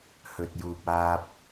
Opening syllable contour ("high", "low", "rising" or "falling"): low